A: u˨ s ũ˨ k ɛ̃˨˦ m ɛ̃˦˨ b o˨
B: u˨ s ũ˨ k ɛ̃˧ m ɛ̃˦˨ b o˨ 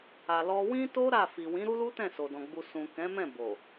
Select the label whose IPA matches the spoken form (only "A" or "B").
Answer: A